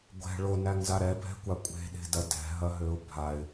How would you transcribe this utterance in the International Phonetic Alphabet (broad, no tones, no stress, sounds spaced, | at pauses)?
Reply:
ɡʷ ɛ̤ ɭ o n æ ŋ z a ɾ ɛ bʱ ɛ̤ kʷ a kʷʼ e̤ ɗ e̤ d ɐ d ɛ̤ ɦ ɐ ɦ ø ʊ̯ bʱ a ɪ̯